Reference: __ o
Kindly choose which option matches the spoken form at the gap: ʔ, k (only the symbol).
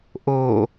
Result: ʔ